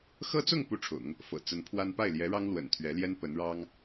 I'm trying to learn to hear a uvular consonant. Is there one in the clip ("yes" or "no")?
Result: no